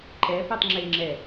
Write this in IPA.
ǃ ɛ p e tˤ ŋ͡ǁ e ŋ͡ǁ ɛ

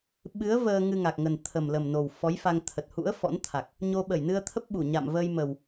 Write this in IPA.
ɓ ɨ˨˦ ə̯ v əː˧ ŋ ɨ˧ ŋ a˨˩ k̚ ŋ ə˨˩ n t̪ʰ ə˨˩ m l ə˨˩ m n o˨˩ w f ɔ˨˦ j f a˧ ŋ t̪ʰ ə˨˩ t̚ h ṵ˧˥ ə̯ f ɔ̰˧˥ n t̪ʰ a˨˩ k̚ | ɲ o˧ ɓ ə˧˩ j n ɨ˧ ə̯ t̪ʰ ə˦˥ p̚ ɓ u˧˩ ɲ a̰˧˨ m v əː˧ j m ə˨˩ w

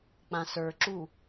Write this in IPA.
k͡p ã s ə˞ ǁ u

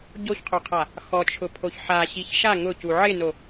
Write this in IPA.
ɟ o ç qʰ o qʰ a | x ɔ t͡ʃʰ ʊ pʰ o ç ħ a ɕ i ç ʃ a ŋ ʊ c u ʕ ɪ n o

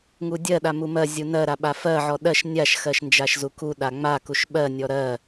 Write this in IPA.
ŋ u dʲ ɜ ɗ a m u m ɜ zʲ u n ɜ ɾ a ɓ a f ɜ ʕ ɔ ɗ ɜ ʃ nʲ a ʃ x ɜ ʃ n d͡ʒ a ʃ z u k u ɗ a ŋ͡m a k u ʃ ɓ ɜ nʲ ɔ ɾ ɜ

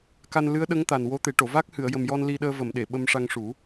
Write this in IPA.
k a˧ n l ɨ˧˥ ə̯ ɗ ə˧˥ ŋ t̪ a˨˩ n w o˧˥ t̪ e˨˩˦ ʈ o˨˩˨ v a˦˥ k̚ h ɨ˨˩˨ ə̯ j ə˨˩ m j ɔ˧ n l i˧ ɗ əː˧ v ə˨˩˨ m ɗ e˨˩˨ ɓ ə˧ m ʂ a˧ ŋ ʂ u˨˩˦

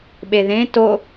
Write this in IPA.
ɓ e ð ẽ t o

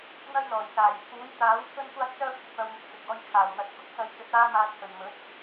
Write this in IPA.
n̪ ɐ˥ j l ɔː˨˩ j s aː˨˩ j pʰ uː˨˥ j t̪ aː˨˥ w t͡sʰ ɵ˥ n kʷ aː˥ t̚ t͡s œː˥ kʷʰ ɪ˨ k̚ w ɐ˧ w ŋ ɪ˧ k̚ t͡s ɪ˨ k̚ ɔː˧ j kʰ aː˨˩ w n̪ ɐ˨˥ t̚ k ʊ˥ k̚ s ɐ˧ j t͡s ɵ˨˥ t̚ aː˥ m aː˧ t̚ h ɵ˨˩ n m ɵ˨˥ t̚

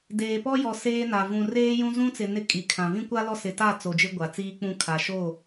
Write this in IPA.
d eː˨ p ɔ˦ j ɔ˨ s eː˦ n a˨ v ũ˨ r eː˦ j ũ˦ z ũ˦ t͡s ɪ˨ n ɪ˦ kʼ i˨ kʰ ã˨ v ĩ˦ kʷ a˦ l ɔ˦ s ɪ˨ t a˦˨ t͡s o˨ d͡ʒ ɪ˦ ɡʷ a˨ t͡s iː˦ k͡p ũ˦˨ kʰ a˨ ʃ o˦˨

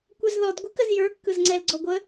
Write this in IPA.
kʷ ɛ z ð ɔ d ɡʷ ɨ k ə z j ə˞ kː ɯ z ŋ͡ǀ ɛ l ɡ͡ǀ ɔ ɡʷ ə

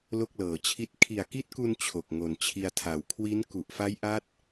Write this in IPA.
l o˥˩ k̚ l ɤː˨˩ t͡ɕʰ i˥˩ t̚ kʰ i˨˩ a̯ k i˦˥ t̚ k u˧ n t͡ɕʰ o˨˩ k̚ ŋ o˨˩ n t͡ɕʰ i˧ a̯ tʰ a˨˩ w kʰ w i˦˥ n k u˨˩ ʔ f a˦˥ j ʔ a˦˥ t̚

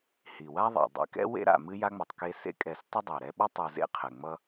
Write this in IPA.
h i˩ w a˦ ðˤ ḛ˩ dˤ ḛ˦ k ɛ̰˥ w ḛ˥ ɾ a̰˨ m ɨ˦ j a˥ ŋ͡m ɐ˨ tˤ k e˦ s ḛ˥ kʼ ɛ˨ s tˤ ə˥ dˤ ɛ˩ ɾ ɛ˦ ɓ ʌ˥ tˤ u˨ z ḛ˦ qʰ ɛ˩ ŋ͡m ʌ˦

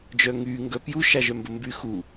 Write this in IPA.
d͡ʒ œ ŋ y ŋ ɡ œ p j u ʃ a ʒ œ m b ə m b y x u

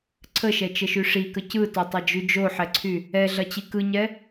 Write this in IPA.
ǀʰ ə ʃ ɛ t͡ʃ ə ʃ y ʂ i k ə c ɯ t o tˤ ɐ d͡ʒ y d͡ʒ o ħ ɛ ǀʰ y | ɛ ɮ ɐ t͡ɕ i k ɯ ɲ ɛ

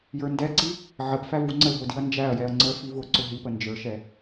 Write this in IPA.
j ə˞ n d ɛ ǀ i | ʕ ə p f æ v u ŋ͡ǀ ə l ɦ ʊ d i ɐ̯ n d͡ʒ æ ɐ̯ j ɛ ɐ̯ ŋ͡ǀ ə f i v ʊ ǀ ʊ ɦ i p ə n d͡ʒ ə˞ ʃ ɛ

